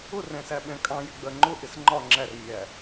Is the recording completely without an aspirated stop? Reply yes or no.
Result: yes